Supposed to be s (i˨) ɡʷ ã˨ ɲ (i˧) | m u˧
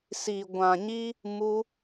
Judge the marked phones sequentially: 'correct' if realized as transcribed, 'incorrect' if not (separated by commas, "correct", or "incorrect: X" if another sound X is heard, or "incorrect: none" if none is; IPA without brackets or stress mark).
correct, correct